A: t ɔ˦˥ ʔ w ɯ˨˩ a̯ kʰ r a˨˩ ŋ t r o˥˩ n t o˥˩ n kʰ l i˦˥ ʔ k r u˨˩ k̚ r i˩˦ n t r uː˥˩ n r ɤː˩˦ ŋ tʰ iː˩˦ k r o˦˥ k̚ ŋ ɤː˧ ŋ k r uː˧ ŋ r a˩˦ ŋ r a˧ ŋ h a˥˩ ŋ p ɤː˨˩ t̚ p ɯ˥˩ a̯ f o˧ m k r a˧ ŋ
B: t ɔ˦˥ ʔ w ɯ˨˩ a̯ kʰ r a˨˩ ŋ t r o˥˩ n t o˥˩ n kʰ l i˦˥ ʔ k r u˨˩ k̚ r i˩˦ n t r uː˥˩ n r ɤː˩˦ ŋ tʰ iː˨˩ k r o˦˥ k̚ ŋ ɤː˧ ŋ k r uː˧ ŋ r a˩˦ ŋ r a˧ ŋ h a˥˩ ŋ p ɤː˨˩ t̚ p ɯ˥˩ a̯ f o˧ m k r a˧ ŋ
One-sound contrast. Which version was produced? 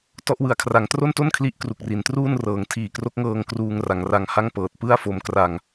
B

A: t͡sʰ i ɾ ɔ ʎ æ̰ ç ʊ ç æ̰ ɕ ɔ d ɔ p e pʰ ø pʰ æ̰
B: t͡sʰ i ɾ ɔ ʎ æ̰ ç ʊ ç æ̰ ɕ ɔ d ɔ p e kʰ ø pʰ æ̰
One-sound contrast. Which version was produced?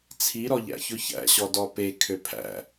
B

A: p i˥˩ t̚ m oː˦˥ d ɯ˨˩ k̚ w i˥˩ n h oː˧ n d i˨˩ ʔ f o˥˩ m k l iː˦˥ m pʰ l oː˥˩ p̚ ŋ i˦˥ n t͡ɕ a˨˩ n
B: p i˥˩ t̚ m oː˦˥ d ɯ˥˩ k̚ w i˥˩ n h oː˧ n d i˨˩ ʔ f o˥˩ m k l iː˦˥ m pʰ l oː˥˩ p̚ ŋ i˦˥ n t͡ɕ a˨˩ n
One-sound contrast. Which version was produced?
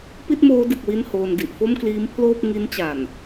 A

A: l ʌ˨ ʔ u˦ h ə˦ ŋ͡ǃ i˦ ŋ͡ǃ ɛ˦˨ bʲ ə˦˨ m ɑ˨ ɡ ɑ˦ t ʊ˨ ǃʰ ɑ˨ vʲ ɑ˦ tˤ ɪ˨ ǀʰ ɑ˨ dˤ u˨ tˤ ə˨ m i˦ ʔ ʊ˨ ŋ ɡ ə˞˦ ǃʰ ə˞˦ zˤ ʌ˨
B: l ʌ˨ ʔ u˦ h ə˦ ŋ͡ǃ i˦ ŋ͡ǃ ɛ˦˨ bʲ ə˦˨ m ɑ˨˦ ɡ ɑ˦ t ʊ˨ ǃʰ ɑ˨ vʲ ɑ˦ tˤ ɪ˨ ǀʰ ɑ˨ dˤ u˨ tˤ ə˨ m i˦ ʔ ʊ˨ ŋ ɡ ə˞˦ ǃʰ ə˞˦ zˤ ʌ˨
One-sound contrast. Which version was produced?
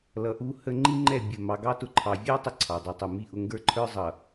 A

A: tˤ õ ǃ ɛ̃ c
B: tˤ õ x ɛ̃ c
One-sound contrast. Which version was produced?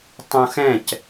B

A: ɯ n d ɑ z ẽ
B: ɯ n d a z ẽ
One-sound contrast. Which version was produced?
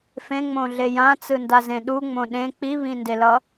B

